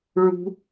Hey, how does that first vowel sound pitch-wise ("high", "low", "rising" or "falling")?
high